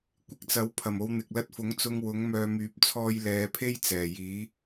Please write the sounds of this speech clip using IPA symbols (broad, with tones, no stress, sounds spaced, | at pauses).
kʷ ɪ˧ k̚ t͡s ɐ˨˥ w pʰ ɐ˨˩ m o˨˧ w n̪ ɪ˨ k̚ l ɐ˧ t̚ f ʊ˨˥ ŋ t͡s ʊ˧ ŋ w ʊ˨˥ ŋ m œː˧ m yː˨˥ p̚ t͡sʰ ɔː˧ j l ɛː˨˧ pʰ e˥ j t͡s ɛː˨˩ j iː˨˥